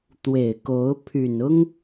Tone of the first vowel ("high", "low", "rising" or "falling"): low